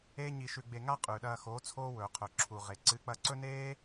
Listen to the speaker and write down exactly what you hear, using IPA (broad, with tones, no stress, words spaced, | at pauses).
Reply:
eː˦ɲi˧ʃʉ˧ɡ͡be˧ ŋa˦ qʼʉ˨ɗɐː˧xo˨˦ t͡sʰoː˦wɵː˨qʰɵ˨ ǁʰu˨ʁe˨ ǀɨ˨˦k͡pɐ˧ǀɵ˦neː˦